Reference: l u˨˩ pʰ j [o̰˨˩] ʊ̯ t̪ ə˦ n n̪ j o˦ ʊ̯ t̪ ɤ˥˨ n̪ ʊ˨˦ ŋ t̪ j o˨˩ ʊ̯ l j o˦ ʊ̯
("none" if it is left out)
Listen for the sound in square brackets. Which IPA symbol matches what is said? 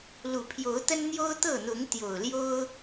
o˨˦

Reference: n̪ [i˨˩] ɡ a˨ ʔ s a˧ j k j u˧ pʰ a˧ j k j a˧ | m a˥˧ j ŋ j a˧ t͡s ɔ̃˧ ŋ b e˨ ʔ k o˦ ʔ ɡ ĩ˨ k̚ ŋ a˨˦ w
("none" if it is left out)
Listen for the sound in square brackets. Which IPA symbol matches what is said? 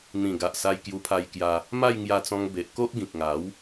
ĩ˨˩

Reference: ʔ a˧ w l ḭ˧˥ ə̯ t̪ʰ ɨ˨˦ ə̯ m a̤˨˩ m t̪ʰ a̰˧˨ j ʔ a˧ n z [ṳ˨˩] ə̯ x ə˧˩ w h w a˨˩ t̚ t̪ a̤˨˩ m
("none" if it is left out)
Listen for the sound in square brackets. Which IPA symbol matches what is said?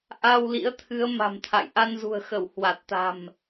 ṳ˨˩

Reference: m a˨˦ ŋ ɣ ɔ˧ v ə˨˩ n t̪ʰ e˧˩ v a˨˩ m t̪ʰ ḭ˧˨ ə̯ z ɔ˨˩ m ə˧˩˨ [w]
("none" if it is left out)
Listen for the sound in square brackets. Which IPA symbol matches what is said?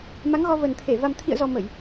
j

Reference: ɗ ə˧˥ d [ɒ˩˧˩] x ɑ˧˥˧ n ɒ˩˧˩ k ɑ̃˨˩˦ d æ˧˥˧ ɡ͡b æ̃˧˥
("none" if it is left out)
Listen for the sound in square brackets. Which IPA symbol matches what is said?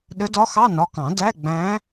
ɒ˧˥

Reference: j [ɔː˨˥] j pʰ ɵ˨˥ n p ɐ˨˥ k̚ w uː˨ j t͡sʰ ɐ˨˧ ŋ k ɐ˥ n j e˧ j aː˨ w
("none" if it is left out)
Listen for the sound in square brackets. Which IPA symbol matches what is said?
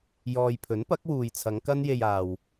ɔː˨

